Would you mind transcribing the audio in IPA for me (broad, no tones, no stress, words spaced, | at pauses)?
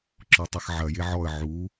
ǁɔtˤɐxʕɐje ʕɔə̯ ʕu